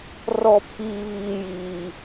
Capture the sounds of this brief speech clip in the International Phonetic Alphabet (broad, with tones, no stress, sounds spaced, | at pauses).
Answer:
r ɔ˦ pʰ iː˦ β iː˦ j iː˦